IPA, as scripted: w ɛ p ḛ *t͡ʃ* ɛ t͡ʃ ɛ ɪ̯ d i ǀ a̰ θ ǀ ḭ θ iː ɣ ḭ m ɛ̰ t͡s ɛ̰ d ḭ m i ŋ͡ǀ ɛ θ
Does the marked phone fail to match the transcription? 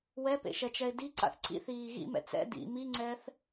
yes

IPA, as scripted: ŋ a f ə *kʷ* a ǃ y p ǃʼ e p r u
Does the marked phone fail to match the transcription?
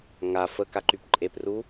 yes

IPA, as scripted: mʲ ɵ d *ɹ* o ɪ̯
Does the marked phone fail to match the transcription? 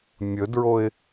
no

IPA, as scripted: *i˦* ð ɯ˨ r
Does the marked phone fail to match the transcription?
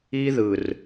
no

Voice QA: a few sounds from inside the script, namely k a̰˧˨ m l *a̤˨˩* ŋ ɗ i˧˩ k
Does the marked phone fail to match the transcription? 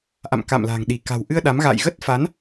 no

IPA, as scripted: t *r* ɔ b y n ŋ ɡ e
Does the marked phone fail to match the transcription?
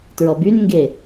yes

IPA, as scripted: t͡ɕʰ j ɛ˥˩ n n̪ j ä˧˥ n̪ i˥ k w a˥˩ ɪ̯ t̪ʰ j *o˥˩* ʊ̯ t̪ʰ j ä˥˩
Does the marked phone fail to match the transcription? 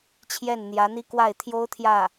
yes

